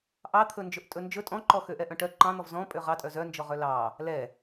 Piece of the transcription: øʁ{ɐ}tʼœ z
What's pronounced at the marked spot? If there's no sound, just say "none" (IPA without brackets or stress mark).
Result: ɑ